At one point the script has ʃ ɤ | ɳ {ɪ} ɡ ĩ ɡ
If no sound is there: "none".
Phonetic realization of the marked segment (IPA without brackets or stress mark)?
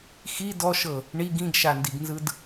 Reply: i